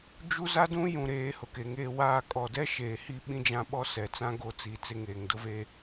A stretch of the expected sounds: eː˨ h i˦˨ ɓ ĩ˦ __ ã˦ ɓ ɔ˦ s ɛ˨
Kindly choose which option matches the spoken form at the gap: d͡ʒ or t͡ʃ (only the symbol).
d͡ʒ